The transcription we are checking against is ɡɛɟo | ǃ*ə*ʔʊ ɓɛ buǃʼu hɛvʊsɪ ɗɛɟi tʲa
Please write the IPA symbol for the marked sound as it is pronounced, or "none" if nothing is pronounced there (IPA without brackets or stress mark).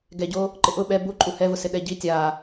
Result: ɪ